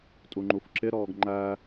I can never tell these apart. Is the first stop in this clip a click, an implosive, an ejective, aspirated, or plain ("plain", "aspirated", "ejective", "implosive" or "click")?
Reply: ejective